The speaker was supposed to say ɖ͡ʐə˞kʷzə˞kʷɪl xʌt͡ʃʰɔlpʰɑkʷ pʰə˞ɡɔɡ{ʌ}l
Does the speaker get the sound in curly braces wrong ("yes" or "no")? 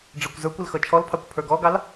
yes